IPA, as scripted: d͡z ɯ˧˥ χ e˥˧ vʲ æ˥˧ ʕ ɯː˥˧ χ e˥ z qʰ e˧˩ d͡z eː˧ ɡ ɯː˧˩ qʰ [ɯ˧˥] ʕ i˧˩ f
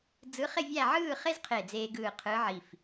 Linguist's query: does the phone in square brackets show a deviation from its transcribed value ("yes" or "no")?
no